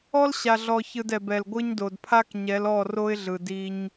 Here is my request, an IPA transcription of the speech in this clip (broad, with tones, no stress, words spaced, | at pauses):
ɔ˦lɕa˨ɮɔ˨çɯ˨d ɛ˨bɛ˨lɡʷɯ˦ɲdo˨d pʰa˦kɲɛ˨˦lɔ˦˨ ro˦ɪ̯ɮɯ˨ di˦ɲ